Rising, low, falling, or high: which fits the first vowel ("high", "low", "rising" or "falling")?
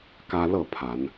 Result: high